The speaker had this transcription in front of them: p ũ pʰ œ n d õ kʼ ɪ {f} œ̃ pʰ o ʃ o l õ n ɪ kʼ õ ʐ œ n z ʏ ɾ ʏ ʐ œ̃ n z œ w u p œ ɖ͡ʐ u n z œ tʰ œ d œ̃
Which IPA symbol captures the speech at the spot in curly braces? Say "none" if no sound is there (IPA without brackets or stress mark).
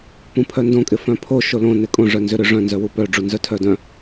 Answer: f